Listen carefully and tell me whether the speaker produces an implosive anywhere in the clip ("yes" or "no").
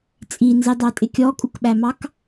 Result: yes